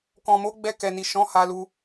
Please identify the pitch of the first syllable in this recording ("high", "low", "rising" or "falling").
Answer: low